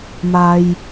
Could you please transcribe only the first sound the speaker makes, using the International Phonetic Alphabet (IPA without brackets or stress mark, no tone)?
m